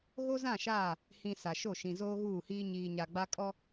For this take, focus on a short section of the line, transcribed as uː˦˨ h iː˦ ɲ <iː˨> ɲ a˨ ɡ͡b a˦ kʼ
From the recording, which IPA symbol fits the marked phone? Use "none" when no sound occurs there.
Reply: iː˨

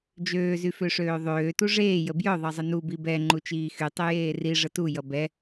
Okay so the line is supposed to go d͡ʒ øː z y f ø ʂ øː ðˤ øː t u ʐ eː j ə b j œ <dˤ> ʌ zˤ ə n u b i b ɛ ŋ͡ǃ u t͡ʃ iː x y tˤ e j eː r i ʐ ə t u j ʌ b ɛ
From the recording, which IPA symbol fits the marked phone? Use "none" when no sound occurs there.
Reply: ðˤ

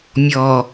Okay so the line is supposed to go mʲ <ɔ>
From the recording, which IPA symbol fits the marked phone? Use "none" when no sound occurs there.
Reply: ɔ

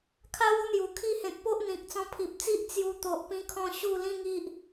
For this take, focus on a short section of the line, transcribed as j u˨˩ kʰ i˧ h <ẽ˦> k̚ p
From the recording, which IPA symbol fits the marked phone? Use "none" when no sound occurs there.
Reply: ẽ˨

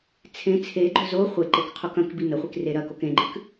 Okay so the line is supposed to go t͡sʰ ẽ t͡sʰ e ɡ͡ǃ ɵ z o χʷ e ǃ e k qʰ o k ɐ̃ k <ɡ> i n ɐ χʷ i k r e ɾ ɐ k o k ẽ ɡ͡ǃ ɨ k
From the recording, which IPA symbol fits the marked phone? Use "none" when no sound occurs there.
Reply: b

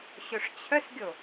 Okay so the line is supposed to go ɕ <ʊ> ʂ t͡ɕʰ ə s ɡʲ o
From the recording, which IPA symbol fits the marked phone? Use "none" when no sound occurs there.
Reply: ʊ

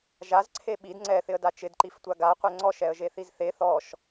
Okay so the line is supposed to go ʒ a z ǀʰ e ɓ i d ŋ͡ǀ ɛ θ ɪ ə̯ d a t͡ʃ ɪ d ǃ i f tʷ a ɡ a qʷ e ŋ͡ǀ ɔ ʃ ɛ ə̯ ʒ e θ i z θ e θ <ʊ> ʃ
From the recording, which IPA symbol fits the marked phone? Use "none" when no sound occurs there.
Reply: ɔ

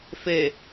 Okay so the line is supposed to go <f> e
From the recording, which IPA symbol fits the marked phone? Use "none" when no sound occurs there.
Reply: f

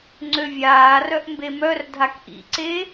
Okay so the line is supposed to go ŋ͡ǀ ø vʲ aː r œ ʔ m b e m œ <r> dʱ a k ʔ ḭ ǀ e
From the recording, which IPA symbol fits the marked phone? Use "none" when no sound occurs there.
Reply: r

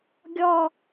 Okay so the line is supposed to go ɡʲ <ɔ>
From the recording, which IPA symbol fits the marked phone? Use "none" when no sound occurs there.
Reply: ɔ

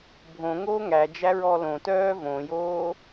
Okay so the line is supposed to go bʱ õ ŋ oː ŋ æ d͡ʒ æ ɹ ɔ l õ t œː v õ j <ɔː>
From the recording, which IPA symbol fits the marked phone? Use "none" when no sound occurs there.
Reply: oː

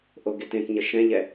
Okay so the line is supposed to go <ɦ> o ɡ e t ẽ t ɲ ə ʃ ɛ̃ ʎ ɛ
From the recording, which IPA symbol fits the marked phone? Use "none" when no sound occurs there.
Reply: ʔ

